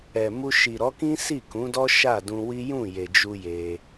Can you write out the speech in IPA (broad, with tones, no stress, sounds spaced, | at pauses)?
ɛ˨ m u˧ ʃ i˨ ɾ ɔ˨˦ k ĩ˦ s i˦˨ k ũ˨˦ d ɔ˦ ʃ a˦˨ d ũ˧ w i˦ j ũ˦˨ j e˨ d͡ʒ u˧ j e˧